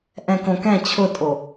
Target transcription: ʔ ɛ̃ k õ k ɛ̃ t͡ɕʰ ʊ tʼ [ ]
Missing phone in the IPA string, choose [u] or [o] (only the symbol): o